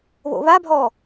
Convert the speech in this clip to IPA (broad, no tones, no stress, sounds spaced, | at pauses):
β o̰ β a bʱ ɔ